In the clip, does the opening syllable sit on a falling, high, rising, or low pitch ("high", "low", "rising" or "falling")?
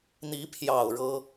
rising